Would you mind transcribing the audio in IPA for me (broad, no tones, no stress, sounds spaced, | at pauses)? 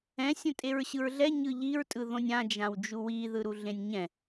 ɛ̃ sʲ õ tʼ e ɹ ɕ ɯ ɹ ɮ ɛ ɲ ɯ ʎ i ɹ tʼ ɯ ð õ nʲ ã d͡ʒ ã w d͡ʒ u w i ð ɯ ɾ u ɮ ẽ nʲ ɲ ɛ̃